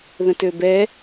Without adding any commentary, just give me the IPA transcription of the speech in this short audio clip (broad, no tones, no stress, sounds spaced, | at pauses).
ð ə̃ t ø b ɛ